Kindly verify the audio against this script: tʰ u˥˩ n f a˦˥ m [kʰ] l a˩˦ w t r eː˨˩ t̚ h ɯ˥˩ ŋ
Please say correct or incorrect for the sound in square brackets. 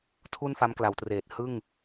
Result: incorrect